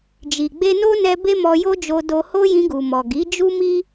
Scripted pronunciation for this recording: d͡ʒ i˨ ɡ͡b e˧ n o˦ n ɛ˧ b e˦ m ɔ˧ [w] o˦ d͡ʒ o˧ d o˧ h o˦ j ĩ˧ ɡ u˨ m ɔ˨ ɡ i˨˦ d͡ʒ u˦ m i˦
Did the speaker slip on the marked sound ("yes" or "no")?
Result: yes